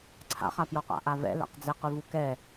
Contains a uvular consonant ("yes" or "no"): yes